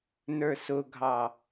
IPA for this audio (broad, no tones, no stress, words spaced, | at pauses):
nə˞sʊɡʱɑ